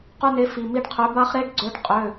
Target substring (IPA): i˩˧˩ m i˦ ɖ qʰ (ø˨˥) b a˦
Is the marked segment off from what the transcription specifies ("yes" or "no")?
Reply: no